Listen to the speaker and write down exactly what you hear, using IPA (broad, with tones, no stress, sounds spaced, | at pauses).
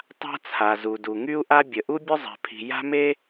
tˤ a̤˥ t͡sʰ a˩ z u˩ d u˩ ŋ y˥ u̯ ʔ a˥ bʲ ə˩ ʔ u˥ bʲ ʊ˥ zˤ ɛ̤˩ pʰ i̤˩ j a̤˥ m e˥